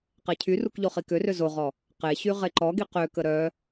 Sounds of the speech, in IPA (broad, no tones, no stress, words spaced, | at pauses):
qecʰyruk ʎoχikørø zoʁɔ | qeɕy ʁeǃɔɡi qøkə ɾœ